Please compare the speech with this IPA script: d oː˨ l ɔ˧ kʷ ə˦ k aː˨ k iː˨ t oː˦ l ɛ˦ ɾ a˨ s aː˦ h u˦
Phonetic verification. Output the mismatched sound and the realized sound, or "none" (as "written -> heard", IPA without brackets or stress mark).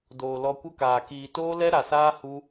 none